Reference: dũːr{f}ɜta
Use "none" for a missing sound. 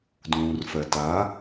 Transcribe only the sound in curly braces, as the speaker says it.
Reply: f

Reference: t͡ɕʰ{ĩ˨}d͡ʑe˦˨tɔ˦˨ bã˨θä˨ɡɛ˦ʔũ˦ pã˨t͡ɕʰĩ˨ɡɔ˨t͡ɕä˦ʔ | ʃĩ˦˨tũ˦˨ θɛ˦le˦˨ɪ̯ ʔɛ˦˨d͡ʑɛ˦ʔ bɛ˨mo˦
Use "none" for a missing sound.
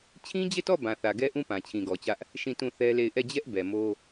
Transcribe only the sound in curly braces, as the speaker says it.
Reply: ĩ˦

